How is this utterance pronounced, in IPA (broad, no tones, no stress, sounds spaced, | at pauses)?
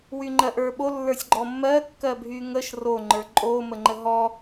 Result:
w y ŋ͡ǃ ɜ ʔ ə˞ ɓ o lː ə˞ sʲ ɡ͡ǃ ɔ mː ɜ kː ɜ bʱ y ŋ ə ʃ r o ŋ͡ǃ ə˞ ǃʼ o m ə ŋ͡ǃ ə ɦ ɔ